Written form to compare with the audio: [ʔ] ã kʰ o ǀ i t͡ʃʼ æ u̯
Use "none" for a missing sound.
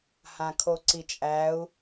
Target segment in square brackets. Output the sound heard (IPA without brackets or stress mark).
h